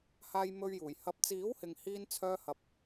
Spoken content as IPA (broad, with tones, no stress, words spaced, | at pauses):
haː˧jmɵ˧ɥjuː˨˩jhɐ˧p̚ t͡siː˨˥whɪ˨ŋ hiː˧nt͡sʰœː˧hɐ˨p̚